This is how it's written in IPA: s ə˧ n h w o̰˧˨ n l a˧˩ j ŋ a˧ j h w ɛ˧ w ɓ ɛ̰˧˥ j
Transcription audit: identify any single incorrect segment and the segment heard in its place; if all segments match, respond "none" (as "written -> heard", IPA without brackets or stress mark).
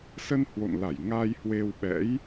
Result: ɛ˧ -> e˧